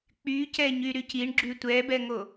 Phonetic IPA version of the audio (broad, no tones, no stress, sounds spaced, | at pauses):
k͡p y c ɛ ɲ y ɾ y c i ɳ ɡ͡ǁ y tʷ ɛ b ɛ ŋ o